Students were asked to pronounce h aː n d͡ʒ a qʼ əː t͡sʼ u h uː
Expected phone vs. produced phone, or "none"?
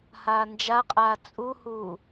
əː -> aː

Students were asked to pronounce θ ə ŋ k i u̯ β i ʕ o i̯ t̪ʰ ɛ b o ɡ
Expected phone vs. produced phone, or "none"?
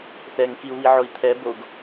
ə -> ɛ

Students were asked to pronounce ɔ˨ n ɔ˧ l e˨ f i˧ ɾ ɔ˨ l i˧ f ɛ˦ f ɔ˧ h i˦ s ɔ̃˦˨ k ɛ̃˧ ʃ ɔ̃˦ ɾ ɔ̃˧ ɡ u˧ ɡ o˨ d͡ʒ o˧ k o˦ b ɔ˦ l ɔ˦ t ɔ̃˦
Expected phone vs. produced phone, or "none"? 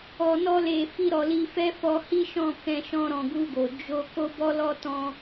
s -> ʃ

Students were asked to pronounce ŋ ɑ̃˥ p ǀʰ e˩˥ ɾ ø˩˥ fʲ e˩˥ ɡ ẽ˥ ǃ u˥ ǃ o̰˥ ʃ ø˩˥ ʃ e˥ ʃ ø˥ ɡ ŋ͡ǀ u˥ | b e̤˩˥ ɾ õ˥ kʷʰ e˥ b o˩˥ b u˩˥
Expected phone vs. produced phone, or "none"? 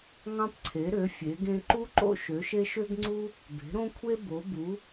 none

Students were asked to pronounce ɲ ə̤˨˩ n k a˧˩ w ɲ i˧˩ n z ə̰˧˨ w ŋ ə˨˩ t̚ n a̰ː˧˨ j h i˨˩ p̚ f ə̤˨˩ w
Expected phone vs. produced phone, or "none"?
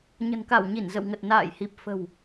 none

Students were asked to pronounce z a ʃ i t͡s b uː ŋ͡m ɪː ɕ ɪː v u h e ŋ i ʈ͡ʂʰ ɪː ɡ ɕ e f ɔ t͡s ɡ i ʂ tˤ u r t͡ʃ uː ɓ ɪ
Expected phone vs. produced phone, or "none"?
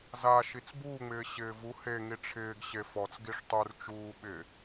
none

